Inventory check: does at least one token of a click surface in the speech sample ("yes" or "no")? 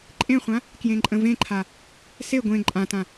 yes